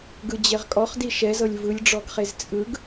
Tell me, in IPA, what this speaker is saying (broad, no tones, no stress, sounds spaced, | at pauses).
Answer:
ɡ ɯ d͡ʑ e ʁ kʼ ɔ χ d i ʃ ɛ z ɤ lʲ v ɯ lʲ ɖ͡ʐ ɔ ɡ χ e z t͡sʼ ɯ ɡ